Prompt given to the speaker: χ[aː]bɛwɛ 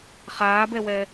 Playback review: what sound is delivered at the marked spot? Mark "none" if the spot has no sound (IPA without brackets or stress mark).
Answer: aː